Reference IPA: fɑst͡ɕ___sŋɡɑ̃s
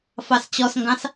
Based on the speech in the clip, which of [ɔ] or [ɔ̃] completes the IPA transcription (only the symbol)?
ɔ